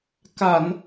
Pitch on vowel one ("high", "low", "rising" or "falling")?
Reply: low